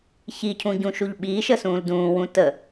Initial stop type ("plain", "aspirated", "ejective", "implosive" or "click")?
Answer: aspirated